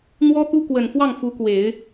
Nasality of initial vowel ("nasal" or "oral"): oral